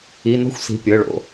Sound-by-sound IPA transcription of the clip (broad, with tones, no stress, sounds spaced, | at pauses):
i˩˧˩ n ɔ̤˥ xʷ s i̤˩˧˩ pʲ ɤ˩˧˩ ɭ o̰˩˧˩